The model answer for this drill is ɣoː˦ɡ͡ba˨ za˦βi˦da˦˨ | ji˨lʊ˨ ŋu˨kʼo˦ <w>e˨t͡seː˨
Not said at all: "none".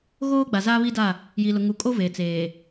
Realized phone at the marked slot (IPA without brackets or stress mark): v